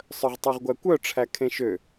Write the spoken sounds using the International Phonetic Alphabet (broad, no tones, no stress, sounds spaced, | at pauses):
sˤ œ ʁ tˤ ø ʁ ɡʷ æ kʷ œ ʈ͡ʂʰ æ kʰ ẽ ʃ ø